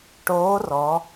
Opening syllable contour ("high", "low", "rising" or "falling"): rising